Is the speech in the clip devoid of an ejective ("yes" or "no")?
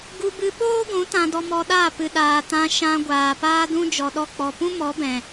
yes